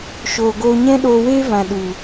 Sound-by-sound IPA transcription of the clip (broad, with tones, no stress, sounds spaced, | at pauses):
ʃ oː˨ ɡ oː˧ ɲ ɛ̃˦ ɗ oː˧ w eː˦ v ã˨ ɗ u˨